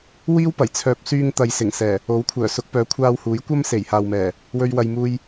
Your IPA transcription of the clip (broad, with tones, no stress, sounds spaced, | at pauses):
w iː˥ w p ɐ˨˩ j t͡sʰ œː˨ p̚ s yː˧ ŋ t̪ ɐ˨ j s ɪ˨˩ ŋ s ɛː˨˩ | o˨˥ w kʷʰ œː˨˩ s ʊ˨˥ k̚ p œː˨˥ kʷʰ aː˧ w h uː˨˥ j kʷ ɐ˥ m s e˨˩ j h aː˨ w m ɛː˨˩ | w ɵ˧ ɥ w ɐ˧ j m uː˧ j